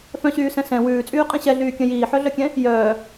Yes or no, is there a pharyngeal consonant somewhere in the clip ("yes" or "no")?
yes